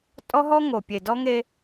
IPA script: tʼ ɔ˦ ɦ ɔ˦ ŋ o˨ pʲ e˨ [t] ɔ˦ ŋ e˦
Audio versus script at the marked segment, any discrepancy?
yes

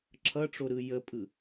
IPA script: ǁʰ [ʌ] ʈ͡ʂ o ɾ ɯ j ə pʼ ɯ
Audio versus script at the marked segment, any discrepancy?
no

